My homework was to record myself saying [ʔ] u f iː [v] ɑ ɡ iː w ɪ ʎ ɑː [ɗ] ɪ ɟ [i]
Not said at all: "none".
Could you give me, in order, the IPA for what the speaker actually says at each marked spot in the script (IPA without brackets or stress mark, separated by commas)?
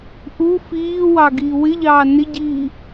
ʔ, w, n, iː